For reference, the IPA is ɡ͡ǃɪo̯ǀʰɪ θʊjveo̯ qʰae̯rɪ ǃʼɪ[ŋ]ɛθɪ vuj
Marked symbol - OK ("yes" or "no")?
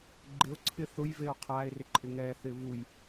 yes